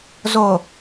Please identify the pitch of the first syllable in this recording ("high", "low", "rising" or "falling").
low